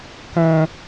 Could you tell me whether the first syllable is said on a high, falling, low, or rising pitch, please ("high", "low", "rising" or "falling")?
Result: high